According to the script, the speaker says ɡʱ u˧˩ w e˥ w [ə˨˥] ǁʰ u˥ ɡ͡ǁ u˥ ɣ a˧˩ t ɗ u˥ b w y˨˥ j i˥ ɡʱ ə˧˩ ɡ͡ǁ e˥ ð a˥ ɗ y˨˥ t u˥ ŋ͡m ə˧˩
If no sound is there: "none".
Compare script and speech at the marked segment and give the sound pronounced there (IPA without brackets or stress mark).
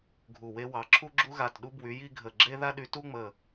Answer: ɑ˨˥